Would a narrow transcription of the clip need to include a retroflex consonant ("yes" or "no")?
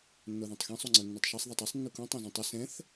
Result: no